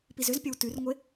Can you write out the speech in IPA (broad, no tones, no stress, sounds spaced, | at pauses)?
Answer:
p i z ʏ z pʲ ɐ w t ʉ r ŋʷ e